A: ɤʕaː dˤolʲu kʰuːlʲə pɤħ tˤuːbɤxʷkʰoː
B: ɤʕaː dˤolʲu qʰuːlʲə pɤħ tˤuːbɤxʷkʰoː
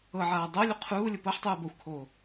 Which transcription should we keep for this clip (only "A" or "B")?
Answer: B